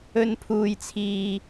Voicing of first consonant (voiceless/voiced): voiced